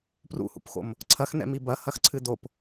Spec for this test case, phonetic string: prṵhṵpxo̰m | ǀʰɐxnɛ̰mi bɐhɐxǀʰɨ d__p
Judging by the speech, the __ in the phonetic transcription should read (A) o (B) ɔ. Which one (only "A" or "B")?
A